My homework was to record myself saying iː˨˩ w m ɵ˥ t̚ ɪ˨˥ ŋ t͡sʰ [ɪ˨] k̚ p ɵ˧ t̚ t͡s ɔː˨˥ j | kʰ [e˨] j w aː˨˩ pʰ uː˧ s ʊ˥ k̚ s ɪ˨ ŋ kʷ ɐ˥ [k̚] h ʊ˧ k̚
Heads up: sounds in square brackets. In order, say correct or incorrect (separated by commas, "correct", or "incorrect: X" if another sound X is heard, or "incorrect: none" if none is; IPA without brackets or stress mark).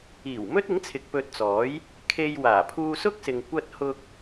correct, incorrect: e˧, incorrect: t̚